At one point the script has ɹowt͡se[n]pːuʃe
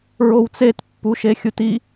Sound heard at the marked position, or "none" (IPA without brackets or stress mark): t